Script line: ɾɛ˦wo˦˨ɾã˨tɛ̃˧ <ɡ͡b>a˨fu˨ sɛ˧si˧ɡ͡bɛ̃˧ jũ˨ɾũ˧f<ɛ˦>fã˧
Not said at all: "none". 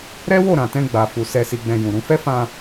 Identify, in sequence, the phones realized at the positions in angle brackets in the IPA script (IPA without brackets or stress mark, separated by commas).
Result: ɡ͡b, ɛ˦